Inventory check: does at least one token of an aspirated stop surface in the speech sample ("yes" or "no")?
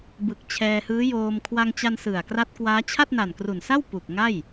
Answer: yes